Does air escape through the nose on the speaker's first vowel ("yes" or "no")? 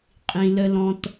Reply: yes